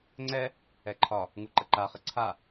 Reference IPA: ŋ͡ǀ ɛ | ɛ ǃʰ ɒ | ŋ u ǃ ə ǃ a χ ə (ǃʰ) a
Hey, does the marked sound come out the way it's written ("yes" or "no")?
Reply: no